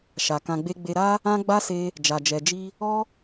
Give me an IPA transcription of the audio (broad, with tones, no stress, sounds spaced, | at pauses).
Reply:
ʃ a˨ k ã˧ ɡ͡b e˦ ɡ͡b e˧ ɾ a˦ | ã˦ ɡ͡b a˦ s e˧ | d͡ʒ a˨ d͡ʒ ɛ˨ d͡ʒ i˧ | ɔ˦